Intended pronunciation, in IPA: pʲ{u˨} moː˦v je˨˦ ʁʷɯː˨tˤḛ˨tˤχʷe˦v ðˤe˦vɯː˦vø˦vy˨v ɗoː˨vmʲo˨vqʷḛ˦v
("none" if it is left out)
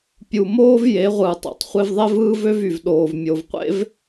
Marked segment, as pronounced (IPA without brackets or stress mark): u˨